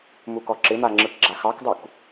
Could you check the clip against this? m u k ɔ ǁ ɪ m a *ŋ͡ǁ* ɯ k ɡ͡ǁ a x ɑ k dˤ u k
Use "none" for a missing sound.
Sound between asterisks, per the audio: ŋ͡ǁ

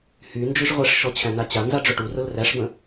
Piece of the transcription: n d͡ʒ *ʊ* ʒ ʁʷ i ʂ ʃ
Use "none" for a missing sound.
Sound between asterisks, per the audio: ʊ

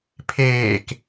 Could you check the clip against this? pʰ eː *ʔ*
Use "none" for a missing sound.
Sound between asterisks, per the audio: k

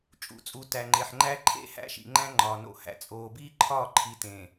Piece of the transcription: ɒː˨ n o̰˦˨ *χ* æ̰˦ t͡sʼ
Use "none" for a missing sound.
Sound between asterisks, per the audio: h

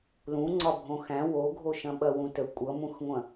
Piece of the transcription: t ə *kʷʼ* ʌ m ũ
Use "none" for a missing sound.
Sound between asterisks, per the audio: kʷʼ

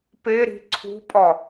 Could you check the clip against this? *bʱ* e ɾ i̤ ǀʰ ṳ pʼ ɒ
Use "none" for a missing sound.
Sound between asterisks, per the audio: p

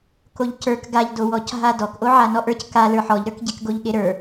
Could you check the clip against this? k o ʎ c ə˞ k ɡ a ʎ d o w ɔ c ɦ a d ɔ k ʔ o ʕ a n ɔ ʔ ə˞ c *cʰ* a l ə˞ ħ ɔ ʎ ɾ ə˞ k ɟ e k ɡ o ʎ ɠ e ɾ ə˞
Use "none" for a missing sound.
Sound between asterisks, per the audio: k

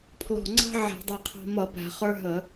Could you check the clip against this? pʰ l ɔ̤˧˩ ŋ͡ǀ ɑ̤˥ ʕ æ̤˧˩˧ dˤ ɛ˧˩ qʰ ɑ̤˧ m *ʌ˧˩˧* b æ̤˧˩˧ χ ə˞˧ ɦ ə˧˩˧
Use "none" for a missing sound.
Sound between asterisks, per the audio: ʌ˧˩˧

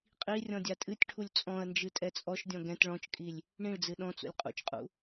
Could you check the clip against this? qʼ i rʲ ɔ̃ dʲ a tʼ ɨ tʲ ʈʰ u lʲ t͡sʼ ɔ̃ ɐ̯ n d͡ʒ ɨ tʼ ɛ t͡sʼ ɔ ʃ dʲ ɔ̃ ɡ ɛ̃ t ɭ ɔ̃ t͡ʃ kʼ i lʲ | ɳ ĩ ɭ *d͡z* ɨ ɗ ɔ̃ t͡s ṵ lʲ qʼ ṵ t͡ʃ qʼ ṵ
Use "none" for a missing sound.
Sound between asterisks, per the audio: d͡z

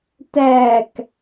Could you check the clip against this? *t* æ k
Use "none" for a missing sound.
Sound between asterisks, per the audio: t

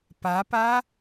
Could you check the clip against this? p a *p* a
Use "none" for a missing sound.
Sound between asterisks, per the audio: p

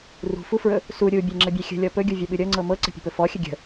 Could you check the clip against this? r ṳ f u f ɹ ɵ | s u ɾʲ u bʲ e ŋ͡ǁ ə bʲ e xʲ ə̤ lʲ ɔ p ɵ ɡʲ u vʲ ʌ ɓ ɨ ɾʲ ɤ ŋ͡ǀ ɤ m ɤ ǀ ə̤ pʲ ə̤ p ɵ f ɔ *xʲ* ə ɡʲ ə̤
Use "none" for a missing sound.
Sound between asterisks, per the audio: xʲ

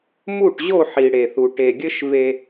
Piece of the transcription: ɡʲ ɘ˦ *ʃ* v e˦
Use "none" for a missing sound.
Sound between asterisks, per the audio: ʃ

